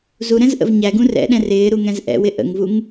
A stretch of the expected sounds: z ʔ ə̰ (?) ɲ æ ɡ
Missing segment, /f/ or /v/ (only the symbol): v